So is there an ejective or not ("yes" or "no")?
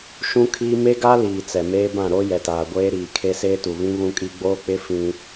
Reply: yes